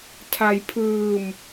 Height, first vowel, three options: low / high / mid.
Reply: low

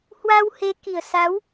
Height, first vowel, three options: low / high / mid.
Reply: low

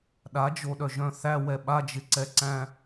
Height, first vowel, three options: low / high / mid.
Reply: low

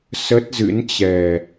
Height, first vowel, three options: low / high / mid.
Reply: mid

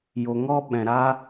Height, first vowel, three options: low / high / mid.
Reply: mid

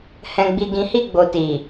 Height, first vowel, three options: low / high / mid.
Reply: mid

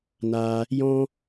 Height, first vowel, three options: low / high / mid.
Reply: low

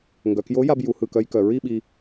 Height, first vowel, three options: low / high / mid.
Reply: mid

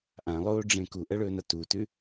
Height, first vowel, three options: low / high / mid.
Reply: low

